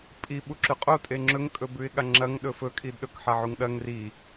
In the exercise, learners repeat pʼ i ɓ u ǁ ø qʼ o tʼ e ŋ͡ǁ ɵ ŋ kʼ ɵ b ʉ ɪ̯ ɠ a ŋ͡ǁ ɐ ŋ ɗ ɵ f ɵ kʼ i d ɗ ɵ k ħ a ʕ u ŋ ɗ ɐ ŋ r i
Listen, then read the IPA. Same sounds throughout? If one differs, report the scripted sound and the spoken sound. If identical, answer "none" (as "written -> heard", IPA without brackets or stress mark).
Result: ø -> ʉ